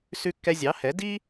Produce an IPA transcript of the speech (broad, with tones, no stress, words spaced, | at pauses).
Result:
sʉ˧kːɛ˧zʲɑ˩˥hɛ˩˥ di˥